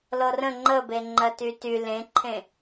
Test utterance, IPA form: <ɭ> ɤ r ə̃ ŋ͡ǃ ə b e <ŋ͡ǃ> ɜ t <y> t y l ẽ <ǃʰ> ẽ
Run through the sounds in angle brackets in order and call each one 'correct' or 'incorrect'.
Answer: incorrect, correct, correct, correct

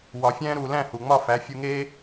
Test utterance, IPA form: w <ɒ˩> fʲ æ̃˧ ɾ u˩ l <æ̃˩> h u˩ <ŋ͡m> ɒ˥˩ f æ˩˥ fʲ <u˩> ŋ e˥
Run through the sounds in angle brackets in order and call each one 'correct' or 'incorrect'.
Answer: correct, incorrect, correct, incorrect

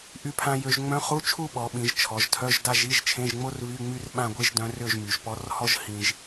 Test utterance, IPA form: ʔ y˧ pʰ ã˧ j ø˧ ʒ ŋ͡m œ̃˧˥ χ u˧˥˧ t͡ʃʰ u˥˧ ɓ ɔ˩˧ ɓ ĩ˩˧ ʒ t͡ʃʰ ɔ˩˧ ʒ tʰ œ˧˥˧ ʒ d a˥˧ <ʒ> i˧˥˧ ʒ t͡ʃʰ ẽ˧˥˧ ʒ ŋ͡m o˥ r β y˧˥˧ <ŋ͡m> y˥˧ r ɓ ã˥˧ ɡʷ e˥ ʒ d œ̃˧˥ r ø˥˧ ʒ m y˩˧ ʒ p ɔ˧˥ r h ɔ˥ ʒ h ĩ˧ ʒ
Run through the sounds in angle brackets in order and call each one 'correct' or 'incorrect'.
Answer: correct, correct

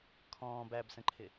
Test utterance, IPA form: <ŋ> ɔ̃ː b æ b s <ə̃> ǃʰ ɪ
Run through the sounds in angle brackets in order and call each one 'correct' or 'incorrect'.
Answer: incorrect, correct

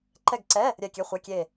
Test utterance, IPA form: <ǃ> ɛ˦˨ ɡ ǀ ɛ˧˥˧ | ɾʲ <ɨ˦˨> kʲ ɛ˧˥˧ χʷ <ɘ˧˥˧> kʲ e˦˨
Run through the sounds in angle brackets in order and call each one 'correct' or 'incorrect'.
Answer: correct, incorrect, incorrect

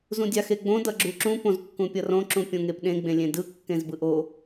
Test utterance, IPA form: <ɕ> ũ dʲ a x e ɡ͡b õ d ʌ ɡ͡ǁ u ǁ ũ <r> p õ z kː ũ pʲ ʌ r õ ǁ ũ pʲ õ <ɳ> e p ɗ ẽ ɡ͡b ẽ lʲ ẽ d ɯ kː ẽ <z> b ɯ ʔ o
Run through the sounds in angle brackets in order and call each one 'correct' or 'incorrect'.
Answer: incorrect, incorrect, incorrect, correct

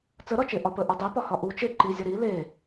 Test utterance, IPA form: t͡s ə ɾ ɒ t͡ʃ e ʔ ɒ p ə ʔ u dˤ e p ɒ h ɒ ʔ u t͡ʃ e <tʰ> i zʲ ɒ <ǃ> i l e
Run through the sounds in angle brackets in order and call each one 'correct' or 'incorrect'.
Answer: incorrect, incorrect

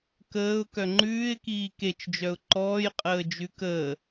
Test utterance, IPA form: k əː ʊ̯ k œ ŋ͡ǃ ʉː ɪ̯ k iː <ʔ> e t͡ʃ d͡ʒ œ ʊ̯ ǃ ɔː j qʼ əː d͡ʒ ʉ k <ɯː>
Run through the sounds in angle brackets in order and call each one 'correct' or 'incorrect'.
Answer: incorrect, incorrect

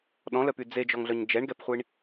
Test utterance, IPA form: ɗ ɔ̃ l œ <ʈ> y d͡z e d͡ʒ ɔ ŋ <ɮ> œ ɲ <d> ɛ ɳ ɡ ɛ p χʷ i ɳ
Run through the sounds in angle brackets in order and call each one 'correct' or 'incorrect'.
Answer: incorrect, correct, incorrect

